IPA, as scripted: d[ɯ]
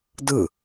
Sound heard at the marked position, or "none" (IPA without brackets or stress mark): ɯ